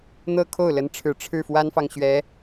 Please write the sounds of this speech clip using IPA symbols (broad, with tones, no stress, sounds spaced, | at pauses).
n̪ ɤ˥ kʰ o˥˩ ʊ̯ l ə˧˥ n ʈ͡ʂʰ ɻ̩˨˩ ʈ͡ʂʰ ɻ̩˥˩ f w a˥ n f ɑ˨ ŋ ɕ ɥ ɛ˧˥